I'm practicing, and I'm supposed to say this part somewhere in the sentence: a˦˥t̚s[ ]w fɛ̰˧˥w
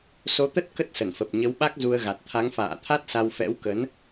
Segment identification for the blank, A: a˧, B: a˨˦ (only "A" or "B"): A